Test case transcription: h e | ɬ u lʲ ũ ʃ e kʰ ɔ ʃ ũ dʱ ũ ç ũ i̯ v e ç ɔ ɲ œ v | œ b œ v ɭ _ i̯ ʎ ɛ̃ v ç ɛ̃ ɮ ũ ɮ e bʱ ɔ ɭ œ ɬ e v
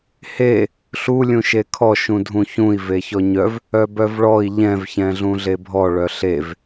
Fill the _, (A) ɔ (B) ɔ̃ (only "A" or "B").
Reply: A